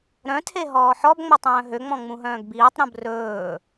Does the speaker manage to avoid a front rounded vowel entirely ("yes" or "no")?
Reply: no